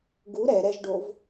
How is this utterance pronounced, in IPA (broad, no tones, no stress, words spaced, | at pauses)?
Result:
ɡu ɾɛɾɛʒɖov